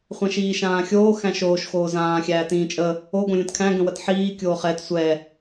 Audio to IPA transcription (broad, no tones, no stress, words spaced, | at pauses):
χʷæ̃ʃiːʃãːxʲoː xæ̃ʃoːʃ xoːzãː xʲæːtĩːt͡ʃʼə | o ɡõlʲə̃tkʰæ̃ ɡə̃wətħiː kʲoːχɛt sʷɛ